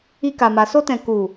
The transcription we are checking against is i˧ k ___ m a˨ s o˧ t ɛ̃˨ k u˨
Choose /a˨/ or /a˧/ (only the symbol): a˨